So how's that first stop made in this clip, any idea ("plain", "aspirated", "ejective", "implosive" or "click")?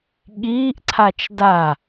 implosive